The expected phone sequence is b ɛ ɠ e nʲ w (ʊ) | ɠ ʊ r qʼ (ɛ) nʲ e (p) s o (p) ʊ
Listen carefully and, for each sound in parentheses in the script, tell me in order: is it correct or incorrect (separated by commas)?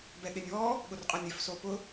incorrect, correct, incorrect, correct